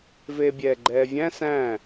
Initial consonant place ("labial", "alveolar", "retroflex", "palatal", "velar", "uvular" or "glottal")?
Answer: labial